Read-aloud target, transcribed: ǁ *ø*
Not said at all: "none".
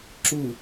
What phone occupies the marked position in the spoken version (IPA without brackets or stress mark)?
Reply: u